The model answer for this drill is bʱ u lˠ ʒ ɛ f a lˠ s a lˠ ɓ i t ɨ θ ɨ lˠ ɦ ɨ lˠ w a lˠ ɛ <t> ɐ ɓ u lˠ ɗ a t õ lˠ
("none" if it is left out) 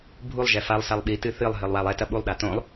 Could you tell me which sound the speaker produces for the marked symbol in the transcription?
t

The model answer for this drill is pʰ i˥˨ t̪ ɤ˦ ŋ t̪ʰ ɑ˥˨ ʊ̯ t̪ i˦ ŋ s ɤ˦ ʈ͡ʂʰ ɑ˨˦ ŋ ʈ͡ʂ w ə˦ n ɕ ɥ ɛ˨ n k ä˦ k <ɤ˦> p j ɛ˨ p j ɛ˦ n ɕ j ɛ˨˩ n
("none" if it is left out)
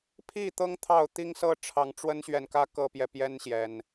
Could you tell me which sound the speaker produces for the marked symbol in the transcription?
ɤ˦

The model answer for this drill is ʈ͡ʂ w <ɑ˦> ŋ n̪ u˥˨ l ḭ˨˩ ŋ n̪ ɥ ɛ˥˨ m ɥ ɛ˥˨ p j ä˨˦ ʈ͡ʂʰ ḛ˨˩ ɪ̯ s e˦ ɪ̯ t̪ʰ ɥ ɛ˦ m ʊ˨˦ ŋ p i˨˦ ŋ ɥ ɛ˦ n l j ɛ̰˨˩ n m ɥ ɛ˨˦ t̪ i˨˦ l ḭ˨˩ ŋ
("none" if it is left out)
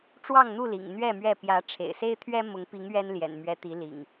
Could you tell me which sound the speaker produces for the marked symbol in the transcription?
ɑ˥˨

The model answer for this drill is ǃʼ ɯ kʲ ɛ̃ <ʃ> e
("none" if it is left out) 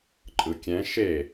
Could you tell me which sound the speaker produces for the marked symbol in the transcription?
ʃ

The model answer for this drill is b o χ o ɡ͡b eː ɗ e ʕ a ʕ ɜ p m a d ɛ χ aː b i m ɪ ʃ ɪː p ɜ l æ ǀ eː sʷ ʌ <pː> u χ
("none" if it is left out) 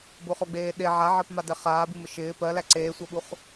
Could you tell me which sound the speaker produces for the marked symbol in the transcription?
ɓ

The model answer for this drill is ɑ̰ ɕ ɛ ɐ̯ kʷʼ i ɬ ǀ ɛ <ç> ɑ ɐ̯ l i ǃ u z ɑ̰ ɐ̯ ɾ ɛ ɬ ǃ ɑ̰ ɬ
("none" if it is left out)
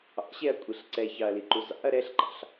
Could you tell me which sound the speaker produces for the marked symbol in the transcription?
ç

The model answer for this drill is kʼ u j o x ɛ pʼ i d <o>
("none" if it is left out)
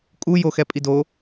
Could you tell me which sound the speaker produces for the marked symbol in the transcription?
o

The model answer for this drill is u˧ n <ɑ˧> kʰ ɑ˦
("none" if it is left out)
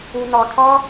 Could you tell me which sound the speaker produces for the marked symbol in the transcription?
ɑ˧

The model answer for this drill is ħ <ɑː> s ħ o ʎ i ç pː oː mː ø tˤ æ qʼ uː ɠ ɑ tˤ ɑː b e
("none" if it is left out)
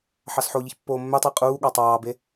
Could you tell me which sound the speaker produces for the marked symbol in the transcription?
ɑ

